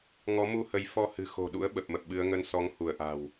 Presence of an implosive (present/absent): present